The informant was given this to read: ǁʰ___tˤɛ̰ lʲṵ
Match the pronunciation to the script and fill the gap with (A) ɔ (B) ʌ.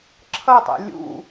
B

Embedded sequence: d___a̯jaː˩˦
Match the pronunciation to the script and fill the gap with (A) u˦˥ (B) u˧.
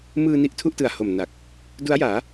A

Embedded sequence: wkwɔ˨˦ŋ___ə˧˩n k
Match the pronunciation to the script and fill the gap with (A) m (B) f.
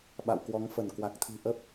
B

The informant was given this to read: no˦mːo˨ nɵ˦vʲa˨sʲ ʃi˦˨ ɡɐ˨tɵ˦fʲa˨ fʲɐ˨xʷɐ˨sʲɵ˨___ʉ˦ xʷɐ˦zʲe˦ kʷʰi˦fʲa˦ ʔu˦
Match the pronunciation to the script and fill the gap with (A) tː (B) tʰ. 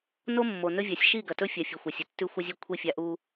A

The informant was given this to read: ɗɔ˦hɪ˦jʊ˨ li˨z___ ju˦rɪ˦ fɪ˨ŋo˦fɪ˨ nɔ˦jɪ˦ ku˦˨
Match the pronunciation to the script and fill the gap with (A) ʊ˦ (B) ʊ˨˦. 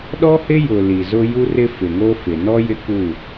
A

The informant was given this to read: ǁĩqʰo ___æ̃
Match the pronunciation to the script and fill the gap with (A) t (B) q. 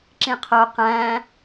B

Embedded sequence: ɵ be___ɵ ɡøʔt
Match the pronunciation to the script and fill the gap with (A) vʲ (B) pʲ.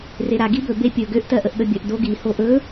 B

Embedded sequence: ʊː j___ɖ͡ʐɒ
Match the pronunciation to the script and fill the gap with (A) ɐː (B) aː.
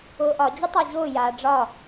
B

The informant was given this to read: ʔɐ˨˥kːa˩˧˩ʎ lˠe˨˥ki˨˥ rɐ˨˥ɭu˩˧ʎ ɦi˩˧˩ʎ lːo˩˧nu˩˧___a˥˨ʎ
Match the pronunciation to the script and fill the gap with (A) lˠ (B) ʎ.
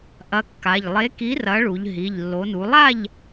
A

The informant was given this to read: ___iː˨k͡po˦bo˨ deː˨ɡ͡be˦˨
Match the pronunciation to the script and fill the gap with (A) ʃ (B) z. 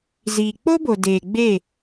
B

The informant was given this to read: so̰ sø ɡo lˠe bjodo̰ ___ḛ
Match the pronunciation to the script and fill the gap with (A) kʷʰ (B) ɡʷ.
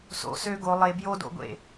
B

